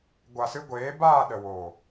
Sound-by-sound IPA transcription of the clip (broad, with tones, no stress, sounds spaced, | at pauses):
ɡʷ a˨ s ɨ˧ ɡʷ eː˨˦ b aː˦˨ ɗ ə˨ w oː˨